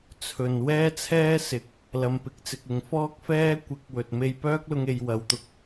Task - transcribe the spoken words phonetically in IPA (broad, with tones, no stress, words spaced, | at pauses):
t͡sʰɵ˨n wɛː˥t͡sʰɛː˥ sɪ˨˥k̚ | lɐ˧mpɪ˨˥k̚t͡sɪ˧k̚ɪ˨˧ŋ fɔː˥k̚fɛː˥ kʷɪ˨˥k̚ wɵ˨t̚ me˧jpœː˥k̚lʊ˧ŋe˨j wɐ˨wt̪ʊ˧k̚